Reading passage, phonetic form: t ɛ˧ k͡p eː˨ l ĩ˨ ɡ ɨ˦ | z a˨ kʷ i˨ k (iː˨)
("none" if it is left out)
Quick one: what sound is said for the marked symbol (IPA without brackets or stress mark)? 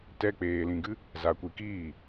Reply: iː˦˨